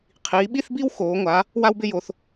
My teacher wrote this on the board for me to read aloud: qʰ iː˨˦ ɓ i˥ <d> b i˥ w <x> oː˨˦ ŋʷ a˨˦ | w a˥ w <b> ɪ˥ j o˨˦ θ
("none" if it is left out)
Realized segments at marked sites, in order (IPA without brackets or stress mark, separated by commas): θ, x, b